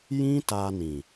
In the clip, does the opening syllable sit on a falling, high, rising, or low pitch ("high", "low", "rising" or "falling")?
high